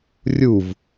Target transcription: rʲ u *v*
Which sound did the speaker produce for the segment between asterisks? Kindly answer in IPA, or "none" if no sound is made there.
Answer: v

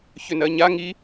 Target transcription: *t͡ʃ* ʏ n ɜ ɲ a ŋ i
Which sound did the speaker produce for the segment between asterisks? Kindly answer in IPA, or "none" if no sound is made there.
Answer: ç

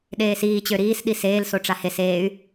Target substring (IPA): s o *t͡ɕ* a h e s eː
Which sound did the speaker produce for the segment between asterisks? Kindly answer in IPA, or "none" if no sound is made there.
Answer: ʈ͡ʂ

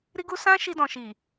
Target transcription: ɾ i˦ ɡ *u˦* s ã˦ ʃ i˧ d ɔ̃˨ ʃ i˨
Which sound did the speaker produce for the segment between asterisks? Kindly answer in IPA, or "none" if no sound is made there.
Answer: u˦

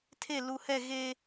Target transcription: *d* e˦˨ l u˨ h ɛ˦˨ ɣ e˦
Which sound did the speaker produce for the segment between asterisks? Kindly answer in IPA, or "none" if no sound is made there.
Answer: tʰ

